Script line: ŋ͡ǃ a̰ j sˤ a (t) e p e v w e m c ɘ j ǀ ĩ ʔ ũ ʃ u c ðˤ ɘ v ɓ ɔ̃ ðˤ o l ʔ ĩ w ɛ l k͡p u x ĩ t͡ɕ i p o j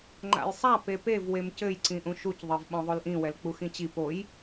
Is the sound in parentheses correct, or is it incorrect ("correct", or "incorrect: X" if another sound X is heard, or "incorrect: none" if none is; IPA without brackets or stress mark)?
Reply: incorrect: p